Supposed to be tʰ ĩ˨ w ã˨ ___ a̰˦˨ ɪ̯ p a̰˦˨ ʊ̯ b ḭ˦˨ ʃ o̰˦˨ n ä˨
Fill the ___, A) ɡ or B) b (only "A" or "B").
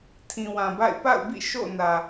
B